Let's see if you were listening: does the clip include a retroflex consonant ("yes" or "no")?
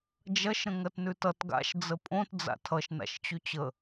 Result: no